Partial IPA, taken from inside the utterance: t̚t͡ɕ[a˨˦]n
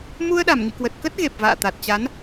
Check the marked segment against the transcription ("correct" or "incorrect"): correct